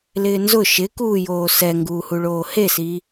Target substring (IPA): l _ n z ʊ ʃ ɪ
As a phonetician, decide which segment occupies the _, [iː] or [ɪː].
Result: ɪː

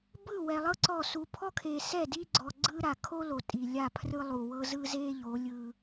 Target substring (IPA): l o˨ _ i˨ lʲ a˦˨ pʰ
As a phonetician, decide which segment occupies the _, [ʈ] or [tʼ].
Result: tʼ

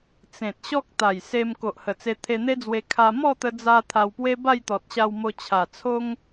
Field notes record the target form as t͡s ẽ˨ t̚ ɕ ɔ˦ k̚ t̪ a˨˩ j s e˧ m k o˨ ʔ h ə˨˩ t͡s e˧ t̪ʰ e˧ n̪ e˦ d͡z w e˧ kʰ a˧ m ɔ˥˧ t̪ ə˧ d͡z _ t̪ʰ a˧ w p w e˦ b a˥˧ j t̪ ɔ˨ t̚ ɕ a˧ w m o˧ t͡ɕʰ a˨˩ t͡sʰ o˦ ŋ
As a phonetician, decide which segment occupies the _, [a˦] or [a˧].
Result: a˧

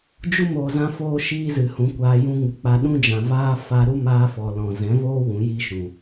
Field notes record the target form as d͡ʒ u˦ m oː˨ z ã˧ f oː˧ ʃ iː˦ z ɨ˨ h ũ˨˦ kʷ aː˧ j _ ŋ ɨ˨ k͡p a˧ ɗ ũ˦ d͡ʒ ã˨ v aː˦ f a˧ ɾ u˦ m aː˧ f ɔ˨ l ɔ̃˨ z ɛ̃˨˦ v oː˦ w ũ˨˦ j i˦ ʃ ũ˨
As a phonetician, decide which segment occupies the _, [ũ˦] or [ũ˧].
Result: ũ˧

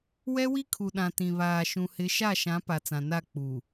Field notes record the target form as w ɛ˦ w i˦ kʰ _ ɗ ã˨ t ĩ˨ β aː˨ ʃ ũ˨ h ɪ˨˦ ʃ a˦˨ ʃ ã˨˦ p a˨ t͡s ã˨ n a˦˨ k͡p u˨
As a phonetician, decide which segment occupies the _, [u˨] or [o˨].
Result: u˨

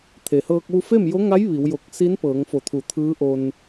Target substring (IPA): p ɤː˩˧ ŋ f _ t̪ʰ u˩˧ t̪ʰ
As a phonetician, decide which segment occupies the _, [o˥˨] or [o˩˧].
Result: o˩˧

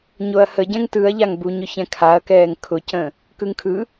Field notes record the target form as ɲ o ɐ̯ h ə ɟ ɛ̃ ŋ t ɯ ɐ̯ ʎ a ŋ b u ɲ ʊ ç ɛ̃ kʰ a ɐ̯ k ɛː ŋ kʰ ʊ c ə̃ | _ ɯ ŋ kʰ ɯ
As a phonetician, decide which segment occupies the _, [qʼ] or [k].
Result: k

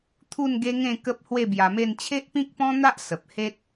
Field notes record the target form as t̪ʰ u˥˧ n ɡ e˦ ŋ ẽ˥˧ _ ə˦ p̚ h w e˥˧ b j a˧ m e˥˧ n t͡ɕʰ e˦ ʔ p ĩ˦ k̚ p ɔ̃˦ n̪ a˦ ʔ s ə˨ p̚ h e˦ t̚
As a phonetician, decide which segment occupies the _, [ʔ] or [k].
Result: k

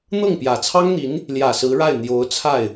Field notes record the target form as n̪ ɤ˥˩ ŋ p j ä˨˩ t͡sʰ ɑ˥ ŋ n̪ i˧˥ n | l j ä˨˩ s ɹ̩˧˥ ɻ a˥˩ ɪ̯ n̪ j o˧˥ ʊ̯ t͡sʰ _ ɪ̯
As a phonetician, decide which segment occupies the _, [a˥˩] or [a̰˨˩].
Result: a˥˩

